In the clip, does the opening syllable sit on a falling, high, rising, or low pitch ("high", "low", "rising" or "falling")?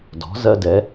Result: rising